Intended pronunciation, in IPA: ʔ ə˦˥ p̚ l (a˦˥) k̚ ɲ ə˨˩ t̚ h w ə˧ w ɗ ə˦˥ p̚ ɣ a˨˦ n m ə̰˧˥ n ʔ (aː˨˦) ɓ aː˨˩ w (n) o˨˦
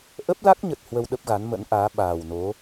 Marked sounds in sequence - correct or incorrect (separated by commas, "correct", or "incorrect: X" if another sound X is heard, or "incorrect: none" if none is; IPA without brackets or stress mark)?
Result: correct, correct, correct